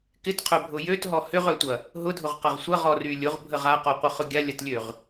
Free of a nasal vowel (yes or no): yes